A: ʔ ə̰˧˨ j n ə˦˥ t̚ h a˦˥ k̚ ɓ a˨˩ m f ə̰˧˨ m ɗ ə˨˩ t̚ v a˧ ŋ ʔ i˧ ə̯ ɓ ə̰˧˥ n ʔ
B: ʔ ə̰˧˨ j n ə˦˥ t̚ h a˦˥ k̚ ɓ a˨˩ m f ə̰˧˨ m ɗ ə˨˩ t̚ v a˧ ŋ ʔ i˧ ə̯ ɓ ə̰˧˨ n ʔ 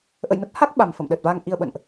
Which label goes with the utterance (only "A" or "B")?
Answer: B